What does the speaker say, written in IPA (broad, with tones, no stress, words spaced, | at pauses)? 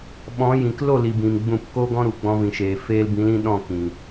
ɓɔ̃˨˦jĩ˨k lo˦˨li˨ bĩ˨m ɡ͡bũ˦˨p ko˦ɡɔ̃˦ɾu˨ ɡ͡bɔ̃˧vĩ˨ʃeː˨ feː˦l bĩ˨˦lĩ˧ ɗɔ̃˦˨kĩ˨